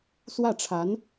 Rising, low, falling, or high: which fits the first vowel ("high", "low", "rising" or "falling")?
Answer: falling